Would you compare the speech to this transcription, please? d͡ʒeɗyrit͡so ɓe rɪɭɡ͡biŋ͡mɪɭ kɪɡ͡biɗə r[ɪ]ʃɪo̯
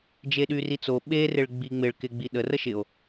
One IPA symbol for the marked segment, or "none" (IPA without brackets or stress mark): ə